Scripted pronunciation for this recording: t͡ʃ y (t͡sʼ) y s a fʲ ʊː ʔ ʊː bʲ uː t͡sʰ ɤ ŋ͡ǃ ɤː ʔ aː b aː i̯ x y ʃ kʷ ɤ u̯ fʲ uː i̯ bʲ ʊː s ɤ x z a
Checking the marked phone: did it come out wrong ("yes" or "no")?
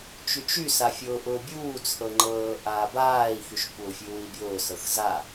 yes